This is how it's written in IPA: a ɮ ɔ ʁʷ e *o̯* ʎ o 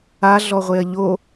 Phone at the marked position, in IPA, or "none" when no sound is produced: ɐ̯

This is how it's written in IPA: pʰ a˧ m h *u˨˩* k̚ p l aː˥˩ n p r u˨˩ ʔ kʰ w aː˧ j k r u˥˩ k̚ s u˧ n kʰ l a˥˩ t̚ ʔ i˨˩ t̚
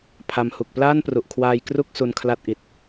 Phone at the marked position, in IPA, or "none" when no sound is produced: u˨˩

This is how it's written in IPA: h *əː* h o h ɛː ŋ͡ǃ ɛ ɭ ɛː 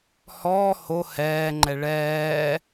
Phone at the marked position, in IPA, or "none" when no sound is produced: ɔː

